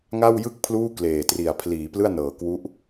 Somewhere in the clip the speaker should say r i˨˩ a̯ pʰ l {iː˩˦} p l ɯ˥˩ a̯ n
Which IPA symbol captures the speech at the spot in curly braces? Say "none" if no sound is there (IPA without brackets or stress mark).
iː˩˦